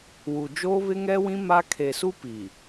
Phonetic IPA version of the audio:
w u˨ d͡ʒ oː˦ β ɪ˦ ŋ ɛ˦ w ĩ˦ m a˦ kʰ e˨ s u˦ p i˨

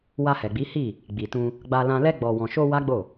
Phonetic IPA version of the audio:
w a˧ h ɛ˨ ɡ͡b i˨˦ h i˦˨ | ɡ͡b i˨ t ũ˧ | ɡ͡b a˧ l ã˧ l ɛ˧ ɡ͡b ɔ˨ w ɔ̃˨ ʃ o˧ w a˦ ɡ͡b o˦˨

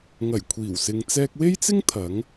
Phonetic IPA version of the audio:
ŋ ɐ˨˩ j kʷʰ iː˨˩ w s ɪ˨ ŋ t͡s ɛː˧ k̚ w e˥ j t͡s ɪ˥ ŋ t̪ʰ ɐ˨˥ ŋ

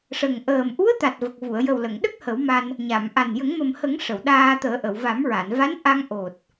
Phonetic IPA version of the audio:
ʂ ə˨˩ ŋ ʔ əː˨˩ m ʔ u˧˥ ə̯ t̪ a˨˩ t̚ v ə˨˩ k̚ v u˨˩˨ ə̯ j ə˨˩ w l ə˨˩˨ ŋ ɗ ə˦˥ k̚ h ə˨˩˦ w m a˧ n | ɲ a˨˩˨ m ʔ a˨˩ n j ə˨˩˦ ŋ m ə˨˩ m h ə˨˩˦ ŋ ʂ ə˨˩˨ w ɗ aː˧ t̪ əː˨˩˦ ʔ ə˨˩˨ w v a˨˩˦ m ɹ a˨˩˨ n v a˧˥ n ʔ a˧ ŋ ʔ o˨˩ t̚

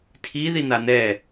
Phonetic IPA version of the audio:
tʰ i ð i n̪ a n̪ ɛ

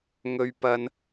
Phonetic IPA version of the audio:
ŋ ɵ˥ ɥ p ɐ˥ n

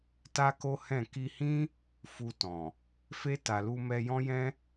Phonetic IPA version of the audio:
t a˦ k o˦ h ɛ̃˦˨ k i˧ h ĩ˦ | f u˧ t ɔ̃˨ | f e˧ t a˨ l u˧ m ɛ˧ j ɔ̃˦ j ɛ̃˦

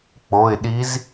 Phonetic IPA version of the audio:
k͡p o˩˧˩ ɪ̯ ɗ i˧˥ z

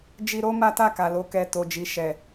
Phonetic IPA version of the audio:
d͡ʒ i˧ ɾ o˦ m a˦ t a˦˨ k a˨ l o˨˦ k ɛ˧ t o˨ d͡ʒ i˨ ʃ ɛ˨

